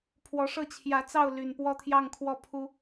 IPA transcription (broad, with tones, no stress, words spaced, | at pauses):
pʰwɔ˨˦ʂɤ˥˨ t͡ɕʰjä˨˦t͡sɑ˥˨ʊ̯ ly˨˩npwɔ˥˨t̪ʰjɑ˥˨ŋkʰwɔ˥˨ pʰu˦